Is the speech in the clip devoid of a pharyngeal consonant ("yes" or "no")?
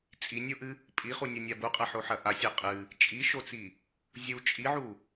no